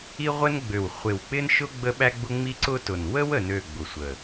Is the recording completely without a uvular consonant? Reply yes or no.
no